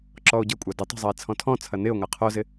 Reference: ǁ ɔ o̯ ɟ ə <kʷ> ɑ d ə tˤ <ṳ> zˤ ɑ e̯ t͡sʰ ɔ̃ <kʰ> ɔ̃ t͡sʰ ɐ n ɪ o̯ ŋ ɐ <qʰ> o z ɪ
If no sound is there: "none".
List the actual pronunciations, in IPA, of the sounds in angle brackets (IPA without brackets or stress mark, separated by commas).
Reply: kʷʼ, ṳ, tʰ, qʰ